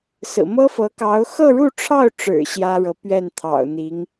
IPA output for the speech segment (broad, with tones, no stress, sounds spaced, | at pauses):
s ɹ̩˨˩ m ɤ˥ f ɤ˧˥ k ɑ˧˥ ʊ̯ x ɤ˥˧ ɻ u˥˧ ʈ͡ʂʰ ɑ˥˩ ʊ̯ ʈ͡ʂ ɻ̩˨˩ ɕ j ä˥ ɻ ɤ˧˥ p ɥ ɛ˥˩ n t̪ʰ ɑ̰˨˩ ʊ̯ n̪ i˧˥ ŋ